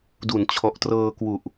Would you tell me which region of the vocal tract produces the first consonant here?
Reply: tongue tip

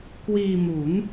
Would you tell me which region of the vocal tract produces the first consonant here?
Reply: velum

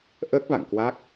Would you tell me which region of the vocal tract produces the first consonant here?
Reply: throat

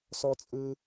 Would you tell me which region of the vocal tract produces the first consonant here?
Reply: tongue tip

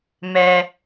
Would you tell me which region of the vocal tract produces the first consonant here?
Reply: lips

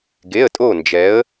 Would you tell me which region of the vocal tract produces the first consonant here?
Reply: velum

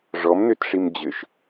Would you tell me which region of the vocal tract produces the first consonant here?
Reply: retroflex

